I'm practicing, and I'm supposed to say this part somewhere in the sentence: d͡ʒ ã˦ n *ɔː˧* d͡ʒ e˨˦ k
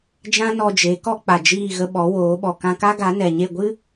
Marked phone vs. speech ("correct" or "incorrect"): incorrect